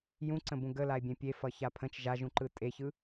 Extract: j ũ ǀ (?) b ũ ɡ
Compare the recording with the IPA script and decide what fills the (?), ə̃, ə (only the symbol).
ə̃